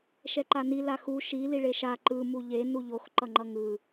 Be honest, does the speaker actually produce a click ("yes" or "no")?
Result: yes